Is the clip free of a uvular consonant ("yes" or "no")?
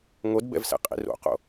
no